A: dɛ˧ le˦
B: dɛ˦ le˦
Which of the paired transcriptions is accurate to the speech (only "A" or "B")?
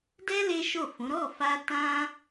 B